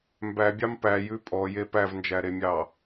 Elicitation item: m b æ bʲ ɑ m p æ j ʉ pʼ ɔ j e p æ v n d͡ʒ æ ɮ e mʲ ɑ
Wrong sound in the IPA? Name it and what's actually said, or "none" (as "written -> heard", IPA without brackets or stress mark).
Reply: ɮ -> ɾ